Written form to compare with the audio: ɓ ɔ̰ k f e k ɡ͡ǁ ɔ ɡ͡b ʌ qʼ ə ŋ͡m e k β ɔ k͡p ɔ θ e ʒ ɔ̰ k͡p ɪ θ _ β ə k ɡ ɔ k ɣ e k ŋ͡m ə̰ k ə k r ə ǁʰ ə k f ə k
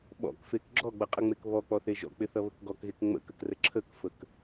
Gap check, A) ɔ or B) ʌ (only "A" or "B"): B